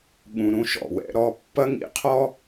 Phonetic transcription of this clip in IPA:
ɠ ũ˨ ɾ ũ˦ ʃ ɔ̰˨ w ɛ̰˦ ɾ ɔ˦ pː ɐ˦ ŋ ḭ˨ qʰ ɔ˦

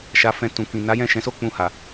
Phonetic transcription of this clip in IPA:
ʃ a˧ f ɛ̃˧ t ũ˨ k ĩ˨ n a˨˦ j ɛ̃˦˨ ʃ ɛ̃˨˦ s o˦ k͡p ũ˧ h a˨

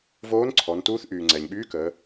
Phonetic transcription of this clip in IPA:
v oː˧˥ n ǀʰ ɔ˩˧ n t uː˧˥ θ ʔ yː˩ ŋ͡ǀ ɛ˩ ɲ ɓ yː˧˥ k əː˩˧

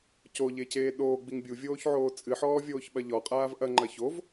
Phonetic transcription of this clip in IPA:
c o ʎ e c eː ɗ oː ɡ͡b i ŋ bʲ u vʲ oː ç ʕ oː t͡sʼ ɨ ħ ɔː vʲ oː ç ɓ ɐ ʎ ɔ qʼ aː v ʔ ɐ ŋ͡ǃ ɐ ç o v

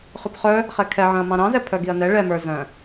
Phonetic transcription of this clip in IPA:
χ ʉ p χ œ | χ ɛ kʰ ɛ ʕ œ̃ ɐ̯ m ɑ̃ ɾ ɑ̃ z ɛ pʰ œ ɡ i ɐ̯ n ɛ ɭ ɛ m ə˞ z œ̃

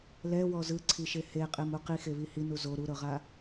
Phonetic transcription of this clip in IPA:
l ɛ w ɔ z ɯ ǀʰ i ʃ e h e qʼ e m u q i x e β i h i n u z o ɾ u ɾ ɤ ʁ a

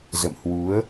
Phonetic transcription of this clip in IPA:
z ə̰˧˨ m h w u˨˦ ə̯

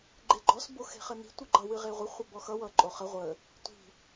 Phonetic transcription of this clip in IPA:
ɡ͡ǃ e ɡ͡ǃ ɔ s b o x e̤ χ ə n i̤ tʷ ɨ ɡ͡ǃ ʌ w ɨ ʁ e ʁʷ ə χʷ ʌ b ɔ x ʌ w ʌ ǃʼ o χ ə ʁʷ ə | tʷ i̤

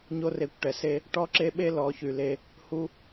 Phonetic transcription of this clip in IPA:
ɲ o˦ r e˧ kʷ ʈ ɛ˨ s e˦ | ʈ ɔ˦ ǁ e˦ ɓ e˦ l ɔ˨˦ ç y˨ l e˧ | h u˦

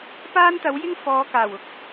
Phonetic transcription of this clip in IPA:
p aː˥ n t̪ ɐ˨˥ w j ɪ˥ ŋ f ɔː˨˧ k aː˨˩ w ʊ˨˥ k̚

